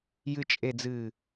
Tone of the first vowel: low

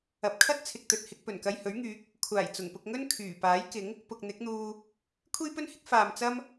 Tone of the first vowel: rising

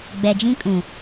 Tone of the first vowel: low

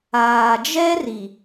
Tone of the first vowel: low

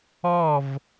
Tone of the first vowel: falling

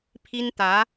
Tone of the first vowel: high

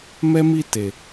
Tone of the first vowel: high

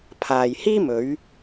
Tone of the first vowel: low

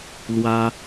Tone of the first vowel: high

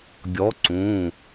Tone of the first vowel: rising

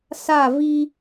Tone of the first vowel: falling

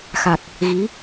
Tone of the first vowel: low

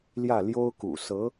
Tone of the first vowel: falling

